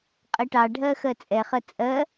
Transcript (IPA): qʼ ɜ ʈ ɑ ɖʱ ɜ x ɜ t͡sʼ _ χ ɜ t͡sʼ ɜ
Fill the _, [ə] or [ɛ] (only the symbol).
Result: ɛ